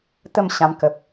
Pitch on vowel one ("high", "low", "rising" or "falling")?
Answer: falling